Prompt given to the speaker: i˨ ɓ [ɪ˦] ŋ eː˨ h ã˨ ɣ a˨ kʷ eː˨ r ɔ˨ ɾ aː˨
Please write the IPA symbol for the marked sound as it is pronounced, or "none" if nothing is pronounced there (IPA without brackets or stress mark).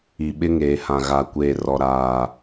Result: ɪ˦